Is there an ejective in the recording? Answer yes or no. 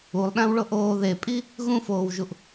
yes